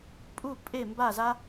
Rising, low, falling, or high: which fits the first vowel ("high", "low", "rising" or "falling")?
falling